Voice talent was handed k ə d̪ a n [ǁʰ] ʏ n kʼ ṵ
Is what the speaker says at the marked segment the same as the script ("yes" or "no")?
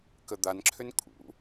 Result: yes